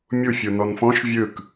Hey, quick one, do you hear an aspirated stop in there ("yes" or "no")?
no